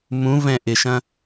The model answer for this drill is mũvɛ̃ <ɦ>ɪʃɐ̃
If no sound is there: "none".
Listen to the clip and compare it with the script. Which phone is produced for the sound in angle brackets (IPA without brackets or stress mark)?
ʔ